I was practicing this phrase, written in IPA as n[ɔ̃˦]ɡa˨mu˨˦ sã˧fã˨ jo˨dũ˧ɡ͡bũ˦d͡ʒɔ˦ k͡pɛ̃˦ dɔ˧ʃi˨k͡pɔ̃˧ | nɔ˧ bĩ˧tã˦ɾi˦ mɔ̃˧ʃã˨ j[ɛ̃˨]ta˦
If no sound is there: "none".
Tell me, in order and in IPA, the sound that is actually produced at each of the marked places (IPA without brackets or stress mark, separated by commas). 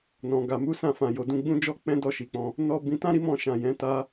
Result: ɔ̃˨, ɛ̃˨˦